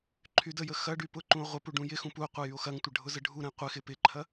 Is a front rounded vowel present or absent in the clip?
present